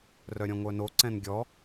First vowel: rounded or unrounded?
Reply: rounded